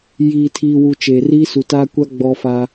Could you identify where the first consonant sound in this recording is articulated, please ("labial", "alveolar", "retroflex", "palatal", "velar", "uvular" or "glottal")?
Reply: palatal